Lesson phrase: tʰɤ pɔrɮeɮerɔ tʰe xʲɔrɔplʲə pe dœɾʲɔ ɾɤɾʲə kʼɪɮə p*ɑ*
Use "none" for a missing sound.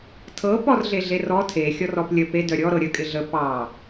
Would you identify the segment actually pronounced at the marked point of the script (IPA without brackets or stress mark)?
ɑ